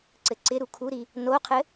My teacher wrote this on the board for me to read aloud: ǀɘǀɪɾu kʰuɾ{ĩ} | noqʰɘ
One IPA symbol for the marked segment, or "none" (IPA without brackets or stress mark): i